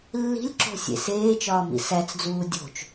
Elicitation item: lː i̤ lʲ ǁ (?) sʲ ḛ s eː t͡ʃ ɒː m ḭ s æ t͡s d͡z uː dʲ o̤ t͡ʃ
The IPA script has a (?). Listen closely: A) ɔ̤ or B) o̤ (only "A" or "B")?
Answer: B